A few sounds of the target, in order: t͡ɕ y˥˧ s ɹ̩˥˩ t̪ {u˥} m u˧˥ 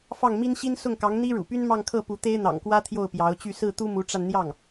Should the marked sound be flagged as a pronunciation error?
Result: no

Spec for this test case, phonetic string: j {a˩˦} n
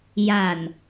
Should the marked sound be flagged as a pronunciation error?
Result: yes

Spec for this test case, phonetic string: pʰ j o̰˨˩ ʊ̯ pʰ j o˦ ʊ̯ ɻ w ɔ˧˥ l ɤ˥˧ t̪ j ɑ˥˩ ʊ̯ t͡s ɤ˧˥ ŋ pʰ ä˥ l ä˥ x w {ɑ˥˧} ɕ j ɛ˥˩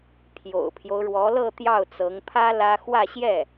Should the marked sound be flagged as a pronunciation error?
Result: yes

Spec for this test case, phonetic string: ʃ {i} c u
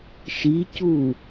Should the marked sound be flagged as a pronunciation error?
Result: no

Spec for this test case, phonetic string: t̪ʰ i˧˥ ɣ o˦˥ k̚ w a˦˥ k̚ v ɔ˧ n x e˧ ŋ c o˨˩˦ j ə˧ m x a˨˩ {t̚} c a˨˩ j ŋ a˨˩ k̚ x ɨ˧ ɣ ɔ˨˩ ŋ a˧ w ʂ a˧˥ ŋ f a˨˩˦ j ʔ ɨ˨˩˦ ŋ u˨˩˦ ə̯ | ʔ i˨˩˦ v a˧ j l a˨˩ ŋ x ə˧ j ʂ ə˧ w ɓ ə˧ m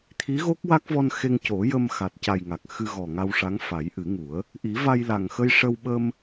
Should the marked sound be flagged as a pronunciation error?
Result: no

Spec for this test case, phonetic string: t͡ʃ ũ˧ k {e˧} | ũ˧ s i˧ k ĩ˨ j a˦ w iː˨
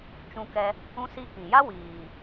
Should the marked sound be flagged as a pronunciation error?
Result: yes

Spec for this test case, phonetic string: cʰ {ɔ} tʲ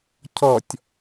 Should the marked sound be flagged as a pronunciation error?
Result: no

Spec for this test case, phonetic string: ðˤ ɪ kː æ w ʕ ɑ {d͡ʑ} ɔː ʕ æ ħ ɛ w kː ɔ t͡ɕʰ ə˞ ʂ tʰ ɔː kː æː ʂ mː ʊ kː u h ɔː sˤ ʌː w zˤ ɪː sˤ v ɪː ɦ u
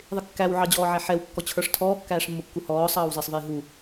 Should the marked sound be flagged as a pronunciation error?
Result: no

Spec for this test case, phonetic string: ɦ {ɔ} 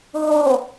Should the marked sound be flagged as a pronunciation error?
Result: yes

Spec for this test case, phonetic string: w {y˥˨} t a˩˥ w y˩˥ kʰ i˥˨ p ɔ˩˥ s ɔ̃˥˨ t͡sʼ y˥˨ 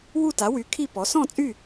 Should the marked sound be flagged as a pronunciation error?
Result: yes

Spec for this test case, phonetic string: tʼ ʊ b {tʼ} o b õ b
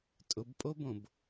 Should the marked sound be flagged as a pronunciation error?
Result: yes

